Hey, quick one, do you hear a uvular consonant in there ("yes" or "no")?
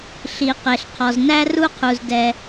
yes